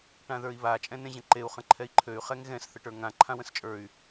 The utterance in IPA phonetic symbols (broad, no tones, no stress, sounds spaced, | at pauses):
ʈ ã ð ə˞ i̯ β a t͡ʃʼ ɛ̃ n ẽ ʑ ə̃ ǃ e u̯ χ ə̃ ǃʰ ɛ i̯ ǃʰ ø y̯ χ ɛ ŋ ɣ ɛ̃ s θ ə ʈ ə˞ ŋ ã ǃʰ ã w ə̃ s t͡ʃʼ ə˞ y̯